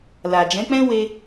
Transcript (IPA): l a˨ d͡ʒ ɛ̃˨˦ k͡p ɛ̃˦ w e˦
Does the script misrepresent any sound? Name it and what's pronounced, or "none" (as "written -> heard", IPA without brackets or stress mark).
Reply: none